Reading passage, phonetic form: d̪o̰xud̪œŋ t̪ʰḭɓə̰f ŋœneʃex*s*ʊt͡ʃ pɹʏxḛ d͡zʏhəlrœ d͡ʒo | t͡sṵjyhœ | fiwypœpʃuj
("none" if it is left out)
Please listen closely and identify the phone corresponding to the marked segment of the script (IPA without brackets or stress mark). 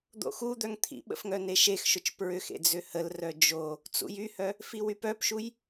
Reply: ʃ